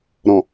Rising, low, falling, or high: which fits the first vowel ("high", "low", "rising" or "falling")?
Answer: low